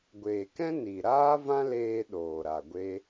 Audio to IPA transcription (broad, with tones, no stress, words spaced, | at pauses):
ɡʷeː˨kɛ̃˦ ni˨ ɾaː˦vã˦leː˧ ɗoː˨ɾa˨ ɡʷe˦